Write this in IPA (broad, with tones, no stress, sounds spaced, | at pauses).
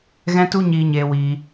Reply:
ɣ ɛ̃˦ t u˦ ɲ iː˧ ɲ eː˧ w iː˧